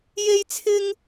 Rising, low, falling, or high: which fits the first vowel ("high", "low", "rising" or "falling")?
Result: high